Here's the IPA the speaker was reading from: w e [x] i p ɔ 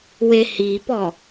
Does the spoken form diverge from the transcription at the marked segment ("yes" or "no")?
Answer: yes